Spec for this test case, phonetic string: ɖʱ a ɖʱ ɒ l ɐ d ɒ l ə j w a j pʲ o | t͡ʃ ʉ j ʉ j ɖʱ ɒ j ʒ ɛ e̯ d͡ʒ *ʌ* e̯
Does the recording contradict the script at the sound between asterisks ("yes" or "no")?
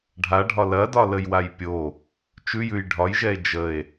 yes